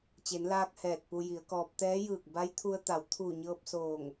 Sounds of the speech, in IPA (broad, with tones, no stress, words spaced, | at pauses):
t͡ɕe˩˧nlaː˧k̚ hɛː˧˩t̚pu˧ji˩˧ə̯kɔː˧p̚ t̪ɛː˧˥jɯː˧˩k̚ ba˧˥jt̪ʰu˧ə̯ t̪a˩˧w t̪ʰuː˧˩ɲɤː˧p̚ soː˧˩ŋ